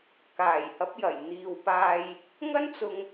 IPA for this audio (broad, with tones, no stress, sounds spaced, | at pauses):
k aː˨˩ j h ɐ˨˥ p̚ j ɐ˨˩ j n̪ iː˨ w p aː˧ j | ŋ ɐ˥ n t͡s ʊ˧ ŋ